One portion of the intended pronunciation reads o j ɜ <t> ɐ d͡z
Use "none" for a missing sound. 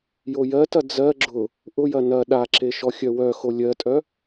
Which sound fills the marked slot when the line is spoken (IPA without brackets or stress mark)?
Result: t